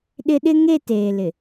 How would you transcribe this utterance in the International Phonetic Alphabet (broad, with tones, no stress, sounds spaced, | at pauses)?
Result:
ɗ ɪ˦ ɗ ɪ˦ ŋ e˦˨ t eː˨ l ɪ˨